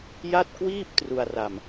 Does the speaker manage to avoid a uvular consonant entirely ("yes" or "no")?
yes